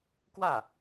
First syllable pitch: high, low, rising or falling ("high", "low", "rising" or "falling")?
falling